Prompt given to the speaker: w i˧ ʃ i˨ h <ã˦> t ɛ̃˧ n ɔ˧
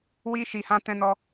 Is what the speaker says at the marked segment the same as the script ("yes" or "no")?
no